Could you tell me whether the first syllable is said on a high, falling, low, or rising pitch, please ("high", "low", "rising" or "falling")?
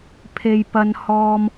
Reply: high